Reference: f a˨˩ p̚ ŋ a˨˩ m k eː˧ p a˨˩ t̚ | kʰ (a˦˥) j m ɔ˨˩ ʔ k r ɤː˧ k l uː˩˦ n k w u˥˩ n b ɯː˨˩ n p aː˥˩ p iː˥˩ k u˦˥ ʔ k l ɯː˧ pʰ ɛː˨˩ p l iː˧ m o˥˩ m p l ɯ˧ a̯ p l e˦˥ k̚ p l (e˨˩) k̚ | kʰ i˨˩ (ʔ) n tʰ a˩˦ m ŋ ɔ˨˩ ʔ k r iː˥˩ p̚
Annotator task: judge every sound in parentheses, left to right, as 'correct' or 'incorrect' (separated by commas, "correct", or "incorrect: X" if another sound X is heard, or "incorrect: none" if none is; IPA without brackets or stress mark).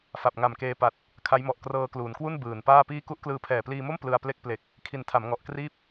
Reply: correct, correct, incorrect: none